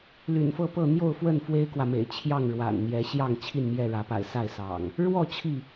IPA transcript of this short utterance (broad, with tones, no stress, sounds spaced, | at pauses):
l y̰˨˩ n f ɤ˥˨ p ɤ˥˨ n̪ j o˥˨ ʊ̯ f w ə˥˨ n f w e˦ ɪ̯ k w ä˨ m ḛ˨˩ ɪ̯ t͡ɕʰ j ɑ˥˨ ŋ ɻ w a̰˨˩ n n̪ j ɛ˨˦ ɕ j ɑ˥˨ ŋ t͡ɕʰ i˥˨ n m j ɛ˥˨ ɻ ä˨˦ p a̰˨˩ ɪ̯ s a˥˨ ɪ̯ s ɑ̰˨˩ ŋ | ɻ w ɔ˥˨ t͡ɕʰ i˥˨